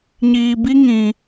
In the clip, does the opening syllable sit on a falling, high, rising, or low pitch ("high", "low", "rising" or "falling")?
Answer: low